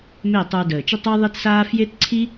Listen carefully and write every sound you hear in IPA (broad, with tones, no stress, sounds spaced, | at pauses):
m e˦˨ tˤ ə˞˧ d əː˨ t͡ʃ ə˦ tˤ ə˦ ɪ̯ ðˤ i˦ t s aː˦ f j e˦ t ǀʰ i˦